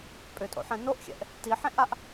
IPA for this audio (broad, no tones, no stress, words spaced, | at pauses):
pʼʏtʼo̰ħɛ̃ noʔxʲɛ̰ʔ | tiħẽʔaʔ